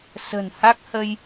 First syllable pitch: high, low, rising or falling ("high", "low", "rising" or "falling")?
low